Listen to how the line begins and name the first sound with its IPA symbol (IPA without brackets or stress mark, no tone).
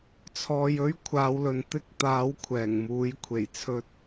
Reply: t͡sʰ